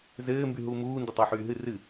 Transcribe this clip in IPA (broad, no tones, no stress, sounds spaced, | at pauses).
z ɘː m b y ɦ uː m uː n d ɨ tˤ ɑ ħ yː ɦ ɨ r ɨ